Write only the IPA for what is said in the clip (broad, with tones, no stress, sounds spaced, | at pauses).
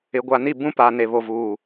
ɪ˨ ɡʷ a˨ n i˦˨ b ũ˦ p a˨ n e˨ β o˨ v uː˨